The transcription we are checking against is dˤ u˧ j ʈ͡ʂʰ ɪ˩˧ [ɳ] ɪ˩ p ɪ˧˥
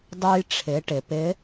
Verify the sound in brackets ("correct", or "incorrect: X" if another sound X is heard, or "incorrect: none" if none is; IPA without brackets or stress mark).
incorrect: ʈ